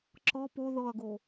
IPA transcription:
ǁ ɤ p o ð ɤ ɐ̯ ɡ o

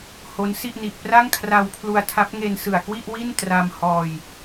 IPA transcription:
h o˦˥ n s i˥˩ ʔ n i˨˩ ʔ p r a˥˩ ŋ kʰ r a˧ w pʰ l u˧ a̯ tʰ a˦˥ p̚ ŋ e˧ n s ɯ˨˩ a̯ k w i˥˩ ʔ w i˥˩ n t r a˧ m h ɔː˧ j

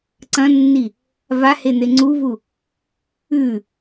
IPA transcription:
ǀ ɐ̃ nː i | v a h e n̪ e ŋ͡ǀ u v u | ʉ

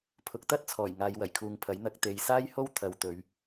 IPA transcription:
pʰ ʊ˨˥ k̚ t̪ ɐ˥ t̚ t͡sʰ ɔː˨˩ j ŋ aː˨˧ j w ɐ˨˩ j kʰ uː˨ ŋ pʰ ɐ˨˥ j n̪ ɐ˨ k̚ t̪ e˨ j s aː˥ j h o˥ w t̪ʰ ɐ˨˧ w t̪ ɵ˨˧ ɥ

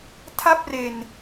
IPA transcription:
tʰ a˥˩ p̚ r e˧ n

